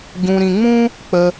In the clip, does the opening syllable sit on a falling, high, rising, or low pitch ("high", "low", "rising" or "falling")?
low